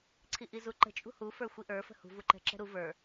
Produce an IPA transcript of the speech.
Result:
ǀʰ i ʔ i z u ǃ ə̤ t͡ʃʼ ṳ h u f ə˞ xʷ i ʔ ə˞ f ə̤ h ṳ v u ǃ ɛ̤ ǁ ɛ̤ ɾ u v ə˞

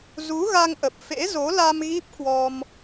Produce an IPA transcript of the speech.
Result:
z u˨˦ ɣ a˧ ŋ ʔ ə˨˩ p̚ f ḛ˧˥ z o˨˦ l a˧ m ɣ i˦˥ p̚ k w ɔ˧ m

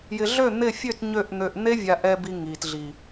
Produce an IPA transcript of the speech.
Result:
j ɪ˧ ɮ ø˦˨ n̪ ɪ˦˨ fʲ ø˦˨ t ɲ ø˦˨ ʔ n̪ ø˧ ʔ n̪ e˦ vʲ a˧ ʔ ɛ˧ b i˧ ŋ i˨ t ɮ i˨

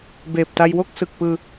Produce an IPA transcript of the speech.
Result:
b eː˨˩ p̚ t a˧ j w o˥˩ k̚ s ɯ˨˩ k̚ p ɯː˧

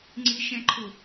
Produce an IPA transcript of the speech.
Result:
ŋ͡ǀ i ʃ ɛ̃ ǃʰ ʊ

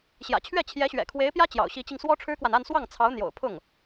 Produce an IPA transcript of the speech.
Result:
ɕ j ä̰˨˩ t͡ɕʰ ɥ ɛ˥˩ t͡ɕʰ j ɛ˧˥ ɕ ɥ ɛ̰˨˩ kʰ w e˧˥ ɪ̯ p j ä˥ t͡ɕ j ɑ̰˨˩ ʊ̯ ɕ i˧˥ t͡ɕ i˧ ŋ s w ɔ˥ ʈ͡ʂʰ ɻ̩˥ k w a˨ n a˥˧ n s w ɑ˥˩ ŋ t͡sʰ ɑ˧˥ ʊ̯ n̪ j o̰˨˩ ʊ̯ pʰ ʊ˥˩ ŋ

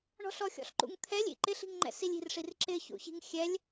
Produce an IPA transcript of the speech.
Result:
ɳ ɔ̤ ɬ ɔ xʲ ɔ̰ ɬ ǃ ṵ ŋ t̪ʰ ɛ lʲ ḭ ǃ ɪ ɬ i̤ ŋ ŋ͡ǃ ɛ̰ s i lʲ i̤ r ʂ i r ǁ ɪ ç ṵ ç i̤ ŋ xʲ ɛ lʲ

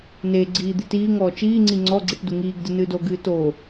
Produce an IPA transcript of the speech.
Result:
n e ɡ͡ǀ iː d̪ i t iː ŋ ɔː t͡ʃ iː ŋ͡ǀ i ŋ͡ǀ ɔ ɡ͡ǀ i ʈ d u ŋ iː ɡ d ɨ n ɨː d o ɡ ɨː t o

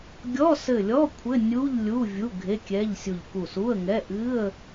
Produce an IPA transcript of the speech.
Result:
ɡʲ ɔ˧˥˧ s ɘ˧˩ lʲ ɔ˧˥˧ kʷʰ ɘ˧˥˧ nʲ u˧˥˧ ʎ lʲ u˧˥˧ vʲ u˧˥˧ ɡʱ e˧˥˧ kʲ ɛ˧˥˧ ʎ sʲ u˧˩ ʎ k u˧˩ s u˧˥˧ ə̯ ŋ ɛ˧˥˧ ʔ ɨ˧˥˧ ə̯

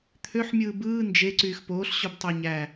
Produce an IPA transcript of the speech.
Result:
t̪ʰ ø ħ mʲ ɯː b ɯː n d͡ʒ e ǀ yː x p oː ɬ ɕ o b tˤ ø ɲ æ

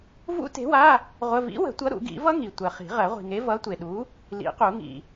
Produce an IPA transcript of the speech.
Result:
v ṵ˦˥ t e̤˨˥ w a˧˥˧ | ʁʷ ə˧˥˧ v ḭ˨˥ w ə̤˨˩˦ tʷ ʌ˨˥ ɾ ṵ˨˩˦ ɡ ḭ˨˩˦ v ʌ˦˥ ŋ i˨ tʷ ɜ˨ χ i̤˨˩˦ ʁ ɜ˨˩˦ ʁʷ i̤˨ ŋ e˨˥ v ʌ˨˥ tʷ e˨ ɗ u˨˥ | l ḭ˨˩˦ q u˨˩˦ ŋ ḭ˨

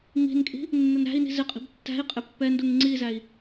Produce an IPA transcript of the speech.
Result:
ŋ i̤ n kʼ i̤ | nː ə n ɾ æ̤ i̯ n i̤ z ɪ qʼ i̤ b tː æ̤ i̯ qʼ ɪ pː ɛ n d u ŋ ŋ͡ǀ i z æ i̯

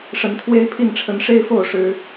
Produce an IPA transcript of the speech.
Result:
ʂ ə˨˦ n kʰ w e˦ ɪ̯ pʰ i˥˨ n ʈ͡ʂʰ ə˨˦ n ʂ e˦ ɪ̯ f o˥˨ ʊ̯ ʂ ɻ̩˨˦

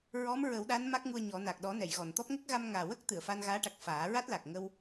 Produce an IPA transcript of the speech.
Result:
ɹ ɔ˧˥ m ɹ ə˨˩˦ w ɗ a˧˥ n m a˦˥ k̚ ŋ u˧ ə̯ ɲ ɔ˨˩˦ n a˨˩ k̚ ɗ ɔ˨˩˦ n ɛ˨˩˨ j ɣ ɔ˨˩˨ n t̪ ɔ˦˥ p̚ ŋ ə˦˥ k̚ ɣ a˧ m ŋ aː˨˩ w ə˦˥ k̚ t̪ ɨ˨˩˨ ə̯ f a˧ n ɣ aː˧˥ ʈ a˨˩ k̚ f aː˨˩˦ ɹ a˦˥ t̚ l a˨˩ k̚ ŋ ə˧ w

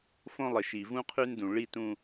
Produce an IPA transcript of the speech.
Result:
f õ˦ lˠ ɪ˨ ʃ i˨ v ũ˦ qʰ ʉ˦ n d ũ˨ ɭ i˦ t ũ˦

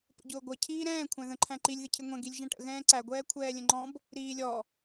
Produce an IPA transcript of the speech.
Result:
p ə̰ ɟ ʊː ɡʷ ʌ cʰ iː ɾ ɛ̃ː kʷʰ æ̃ ð ə̃ ǃʰ æ̃ ǃ i lʲ ð ɪ cʰ ɪ ŋʷ ɛ̃ ɡ i lʲ ʒ æ̃ ʈ ə̰ ɣ ɛ̃ː ǀ æ ɡʷ ɛː kʷʰ ɛː lʲ ə̃ ŋ͡ǃ ɔ̃ b | ɾ iː lʲ ɔ

